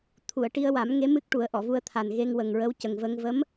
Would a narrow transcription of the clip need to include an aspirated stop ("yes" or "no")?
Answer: yes